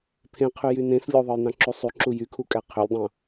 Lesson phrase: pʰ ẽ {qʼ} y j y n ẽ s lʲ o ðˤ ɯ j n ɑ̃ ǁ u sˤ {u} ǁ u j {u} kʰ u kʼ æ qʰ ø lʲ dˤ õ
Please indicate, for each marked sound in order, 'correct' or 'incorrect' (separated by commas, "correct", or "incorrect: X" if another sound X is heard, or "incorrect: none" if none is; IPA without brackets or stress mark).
incorrect: qʰ, incorrect: y, incorrect: y